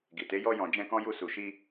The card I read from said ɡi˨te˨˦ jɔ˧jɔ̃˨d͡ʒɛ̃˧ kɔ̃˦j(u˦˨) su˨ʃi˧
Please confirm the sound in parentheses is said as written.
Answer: yes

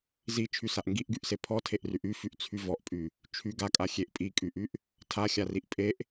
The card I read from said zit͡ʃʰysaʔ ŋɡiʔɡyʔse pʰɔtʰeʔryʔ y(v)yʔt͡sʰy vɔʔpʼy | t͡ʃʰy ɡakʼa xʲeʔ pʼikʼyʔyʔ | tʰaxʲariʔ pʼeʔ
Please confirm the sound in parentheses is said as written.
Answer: no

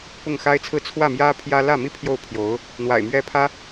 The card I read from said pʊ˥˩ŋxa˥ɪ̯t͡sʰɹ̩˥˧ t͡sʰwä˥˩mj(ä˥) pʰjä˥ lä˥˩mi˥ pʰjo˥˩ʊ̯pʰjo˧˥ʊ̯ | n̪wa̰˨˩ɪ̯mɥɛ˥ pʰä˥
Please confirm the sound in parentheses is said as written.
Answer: yes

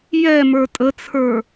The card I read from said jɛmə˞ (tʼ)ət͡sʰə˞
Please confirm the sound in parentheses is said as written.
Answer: yes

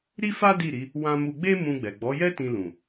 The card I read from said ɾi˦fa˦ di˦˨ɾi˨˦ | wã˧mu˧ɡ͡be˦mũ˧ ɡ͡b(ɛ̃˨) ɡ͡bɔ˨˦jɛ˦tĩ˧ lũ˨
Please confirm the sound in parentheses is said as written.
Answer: no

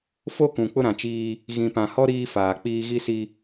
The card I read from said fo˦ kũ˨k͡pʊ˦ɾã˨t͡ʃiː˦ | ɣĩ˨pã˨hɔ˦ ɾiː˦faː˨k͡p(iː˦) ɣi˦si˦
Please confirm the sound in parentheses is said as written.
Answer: yes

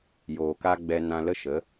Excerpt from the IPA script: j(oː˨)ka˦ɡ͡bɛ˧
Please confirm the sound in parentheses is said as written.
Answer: yes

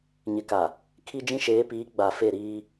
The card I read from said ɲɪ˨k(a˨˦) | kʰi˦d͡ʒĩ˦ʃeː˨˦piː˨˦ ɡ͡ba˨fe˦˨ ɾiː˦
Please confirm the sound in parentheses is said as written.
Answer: no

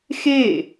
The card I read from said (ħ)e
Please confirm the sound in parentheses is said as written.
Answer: no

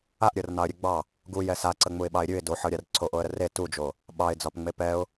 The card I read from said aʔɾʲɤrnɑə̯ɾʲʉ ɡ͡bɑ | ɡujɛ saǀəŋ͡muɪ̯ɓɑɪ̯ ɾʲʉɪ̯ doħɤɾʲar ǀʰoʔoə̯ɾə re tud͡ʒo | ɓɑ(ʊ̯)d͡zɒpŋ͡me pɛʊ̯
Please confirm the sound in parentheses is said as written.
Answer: no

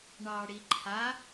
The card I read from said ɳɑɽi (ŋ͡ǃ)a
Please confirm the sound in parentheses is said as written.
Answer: no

